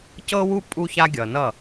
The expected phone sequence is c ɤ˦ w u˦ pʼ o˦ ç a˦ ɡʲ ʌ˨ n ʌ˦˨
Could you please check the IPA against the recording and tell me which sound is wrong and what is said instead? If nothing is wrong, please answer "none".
o˦ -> u˦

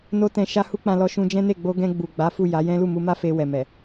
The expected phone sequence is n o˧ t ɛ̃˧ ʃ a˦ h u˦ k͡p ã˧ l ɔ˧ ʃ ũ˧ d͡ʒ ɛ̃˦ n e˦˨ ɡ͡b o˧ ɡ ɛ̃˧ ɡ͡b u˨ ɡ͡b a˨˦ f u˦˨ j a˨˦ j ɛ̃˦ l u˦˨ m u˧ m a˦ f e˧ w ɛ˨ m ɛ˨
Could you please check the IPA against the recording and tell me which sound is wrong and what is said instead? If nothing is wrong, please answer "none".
none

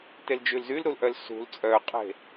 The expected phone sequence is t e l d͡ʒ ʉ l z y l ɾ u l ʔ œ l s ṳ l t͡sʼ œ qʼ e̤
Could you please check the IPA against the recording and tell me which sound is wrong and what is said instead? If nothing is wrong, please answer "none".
none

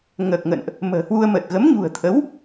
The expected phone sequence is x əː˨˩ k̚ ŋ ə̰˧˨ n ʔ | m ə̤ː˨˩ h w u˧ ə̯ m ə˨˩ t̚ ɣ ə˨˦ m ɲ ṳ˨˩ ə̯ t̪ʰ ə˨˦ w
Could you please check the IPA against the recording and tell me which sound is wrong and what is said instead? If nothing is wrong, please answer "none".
x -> ŋ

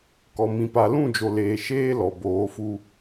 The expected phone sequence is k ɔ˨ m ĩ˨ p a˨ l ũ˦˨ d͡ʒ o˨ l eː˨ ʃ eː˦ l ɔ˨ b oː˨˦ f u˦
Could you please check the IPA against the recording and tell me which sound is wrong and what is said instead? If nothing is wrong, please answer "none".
none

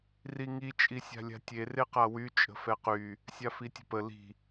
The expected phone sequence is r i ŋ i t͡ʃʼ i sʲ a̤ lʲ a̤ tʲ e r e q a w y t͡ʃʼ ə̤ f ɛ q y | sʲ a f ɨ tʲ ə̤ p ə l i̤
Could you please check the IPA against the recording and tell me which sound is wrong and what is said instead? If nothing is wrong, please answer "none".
ɨ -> i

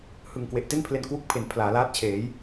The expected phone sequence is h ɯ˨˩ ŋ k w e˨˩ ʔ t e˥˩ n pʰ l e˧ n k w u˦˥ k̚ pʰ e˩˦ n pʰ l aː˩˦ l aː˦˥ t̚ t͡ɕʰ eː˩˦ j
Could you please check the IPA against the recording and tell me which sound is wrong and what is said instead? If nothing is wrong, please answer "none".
none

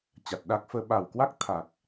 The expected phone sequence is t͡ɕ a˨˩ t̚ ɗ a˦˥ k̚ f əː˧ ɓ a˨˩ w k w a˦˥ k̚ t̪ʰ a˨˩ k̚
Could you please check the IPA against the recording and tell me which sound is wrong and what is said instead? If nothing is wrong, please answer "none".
none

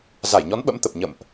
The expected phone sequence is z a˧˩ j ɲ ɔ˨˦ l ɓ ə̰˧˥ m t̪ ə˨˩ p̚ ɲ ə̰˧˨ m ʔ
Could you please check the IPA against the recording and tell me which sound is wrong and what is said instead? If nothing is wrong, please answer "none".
l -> n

